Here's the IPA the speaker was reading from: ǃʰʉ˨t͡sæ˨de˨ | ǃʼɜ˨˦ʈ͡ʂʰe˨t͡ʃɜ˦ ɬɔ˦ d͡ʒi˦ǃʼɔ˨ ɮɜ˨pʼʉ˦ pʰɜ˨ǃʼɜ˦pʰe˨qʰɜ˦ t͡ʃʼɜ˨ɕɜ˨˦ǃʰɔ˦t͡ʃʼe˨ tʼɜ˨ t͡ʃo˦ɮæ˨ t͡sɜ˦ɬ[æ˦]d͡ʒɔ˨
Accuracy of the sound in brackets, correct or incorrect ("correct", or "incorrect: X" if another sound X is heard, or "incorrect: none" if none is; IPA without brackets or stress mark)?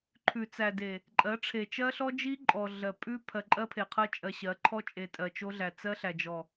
incorrect: æ˨